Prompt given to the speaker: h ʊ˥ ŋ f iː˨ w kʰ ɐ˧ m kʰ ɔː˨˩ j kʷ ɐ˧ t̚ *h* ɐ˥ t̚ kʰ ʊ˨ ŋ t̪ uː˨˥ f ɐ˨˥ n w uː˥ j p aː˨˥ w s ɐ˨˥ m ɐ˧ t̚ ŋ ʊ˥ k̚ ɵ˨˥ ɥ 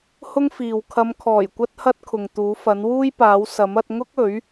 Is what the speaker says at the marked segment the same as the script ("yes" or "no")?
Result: yes